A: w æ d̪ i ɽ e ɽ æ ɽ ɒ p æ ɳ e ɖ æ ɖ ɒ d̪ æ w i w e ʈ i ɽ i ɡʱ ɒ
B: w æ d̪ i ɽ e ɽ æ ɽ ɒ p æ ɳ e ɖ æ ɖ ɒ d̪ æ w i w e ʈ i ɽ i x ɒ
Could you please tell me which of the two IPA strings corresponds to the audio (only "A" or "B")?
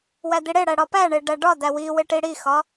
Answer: B